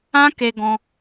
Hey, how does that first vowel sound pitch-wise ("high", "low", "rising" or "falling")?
high